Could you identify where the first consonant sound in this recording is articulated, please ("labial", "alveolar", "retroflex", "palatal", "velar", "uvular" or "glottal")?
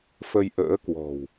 labial